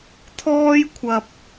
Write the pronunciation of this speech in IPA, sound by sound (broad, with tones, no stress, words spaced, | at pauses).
t̪ʰɔː˥jkʷʰɐ˧p̚